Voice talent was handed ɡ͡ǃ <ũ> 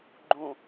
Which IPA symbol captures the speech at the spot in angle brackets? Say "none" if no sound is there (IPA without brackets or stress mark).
ũ